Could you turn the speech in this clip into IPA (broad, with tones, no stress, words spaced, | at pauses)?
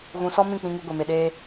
ɣũ˧ sɔ˦mĩ˦˨k͡pĩ˧ŋu˧ ɡʷe˨me˨ɗeː˧